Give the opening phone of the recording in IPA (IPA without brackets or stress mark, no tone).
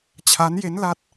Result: t͡ɕʰ